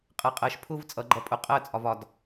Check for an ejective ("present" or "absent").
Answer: present